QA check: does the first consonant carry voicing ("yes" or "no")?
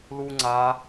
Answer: yes